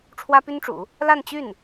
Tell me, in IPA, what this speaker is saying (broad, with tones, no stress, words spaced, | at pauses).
ʈ͡ʂʰwä˥py˥nʈ͡ʂṵ˨˩˦ | la˥˧nt͡ɕy˥˩n